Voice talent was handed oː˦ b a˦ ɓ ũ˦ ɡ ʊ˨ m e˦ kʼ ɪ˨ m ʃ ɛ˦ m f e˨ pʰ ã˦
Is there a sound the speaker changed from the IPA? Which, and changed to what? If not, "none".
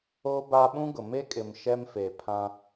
none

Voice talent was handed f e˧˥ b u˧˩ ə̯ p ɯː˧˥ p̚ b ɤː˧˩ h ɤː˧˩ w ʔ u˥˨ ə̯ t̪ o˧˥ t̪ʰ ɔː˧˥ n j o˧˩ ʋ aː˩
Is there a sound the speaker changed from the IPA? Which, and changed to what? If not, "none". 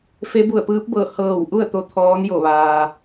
none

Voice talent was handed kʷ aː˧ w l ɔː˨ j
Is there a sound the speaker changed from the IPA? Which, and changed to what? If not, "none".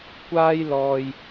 w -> j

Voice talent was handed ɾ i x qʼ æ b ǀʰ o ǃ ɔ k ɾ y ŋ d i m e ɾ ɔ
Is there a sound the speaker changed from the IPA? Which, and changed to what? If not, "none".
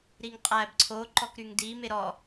x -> ŋ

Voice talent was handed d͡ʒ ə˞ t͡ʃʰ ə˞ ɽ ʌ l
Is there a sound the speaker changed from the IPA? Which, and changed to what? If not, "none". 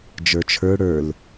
ʌ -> ə˞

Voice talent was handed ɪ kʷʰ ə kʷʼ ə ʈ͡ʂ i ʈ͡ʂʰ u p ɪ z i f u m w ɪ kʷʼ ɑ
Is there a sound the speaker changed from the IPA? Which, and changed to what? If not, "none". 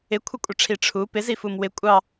ʈ͡ʂ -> ʈ͡ʂʰ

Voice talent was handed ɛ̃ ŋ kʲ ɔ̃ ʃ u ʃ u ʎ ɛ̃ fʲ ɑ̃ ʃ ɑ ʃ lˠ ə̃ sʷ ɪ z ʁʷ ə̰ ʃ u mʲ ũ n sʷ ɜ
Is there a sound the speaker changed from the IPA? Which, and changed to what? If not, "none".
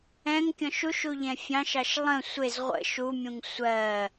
n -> ŋ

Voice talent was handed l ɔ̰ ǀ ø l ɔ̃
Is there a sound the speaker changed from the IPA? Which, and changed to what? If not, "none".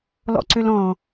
none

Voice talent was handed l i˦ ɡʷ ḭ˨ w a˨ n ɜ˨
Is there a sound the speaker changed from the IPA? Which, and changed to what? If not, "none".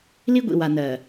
none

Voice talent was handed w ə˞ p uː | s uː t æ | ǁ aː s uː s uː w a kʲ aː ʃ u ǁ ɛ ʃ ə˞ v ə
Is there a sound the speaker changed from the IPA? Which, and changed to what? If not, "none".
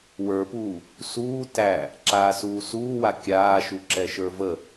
none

